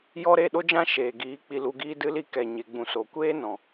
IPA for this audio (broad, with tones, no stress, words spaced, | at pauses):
jɔ˦ ɾe˦˨ɗo˦d͡ʒã˦ ʃeː˨ɡiː˨˦k͡pi˧ lu˧ɡiː˦dɨ˦li˦ kɛ˨ɲe˨ ɡ͡bũ˨so˨kʷeː˦nɔ̃˨